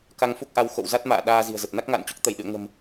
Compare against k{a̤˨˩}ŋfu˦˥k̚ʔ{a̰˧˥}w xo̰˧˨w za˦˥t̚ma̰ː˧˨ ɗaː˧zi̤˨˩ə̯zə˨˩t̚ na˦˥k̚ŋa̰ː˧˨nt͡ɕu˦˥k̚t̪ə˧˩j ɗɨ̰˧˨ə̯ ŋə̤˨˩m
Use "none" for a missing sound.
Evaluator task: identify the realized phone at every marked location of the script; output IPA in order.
a˧, a˨˦

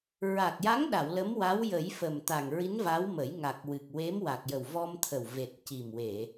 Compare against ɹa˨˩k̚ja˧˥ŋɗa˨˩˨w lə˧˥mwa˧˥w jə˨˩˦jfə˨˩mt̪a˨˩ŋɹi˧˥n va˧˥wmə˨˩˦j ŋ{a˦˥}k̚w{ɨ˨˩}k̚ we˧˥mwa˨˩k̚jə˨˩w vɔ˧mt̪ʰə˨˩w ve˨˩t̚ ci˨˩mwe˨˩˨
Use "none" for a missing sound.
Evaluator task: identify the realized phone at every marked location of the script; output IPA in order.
a˨˩, ɨ˨˩

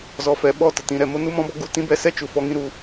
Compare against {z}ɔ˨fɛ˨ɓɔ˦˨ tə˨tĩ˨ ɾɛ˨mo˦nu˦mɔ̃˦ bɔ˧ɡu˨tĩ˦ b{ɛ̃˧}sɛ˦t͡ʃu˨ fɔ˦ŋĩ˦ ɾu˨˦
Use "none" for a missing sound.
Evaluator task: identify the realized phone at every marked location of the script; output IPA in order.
z, ɛ˧

